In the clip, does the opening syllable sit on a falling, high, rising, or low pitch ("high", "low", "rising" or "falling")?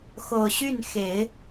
low